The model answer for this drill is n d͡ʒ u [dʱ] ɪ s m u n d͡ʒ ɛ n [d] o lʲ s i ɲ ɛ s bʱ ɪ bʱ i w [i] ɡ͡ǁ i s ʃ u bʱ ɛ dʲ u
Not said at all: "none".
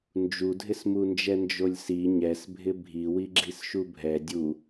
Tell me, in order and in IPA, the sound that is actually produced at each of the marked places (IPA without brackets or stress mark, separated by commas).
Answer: dʱ, d͡ʒ, i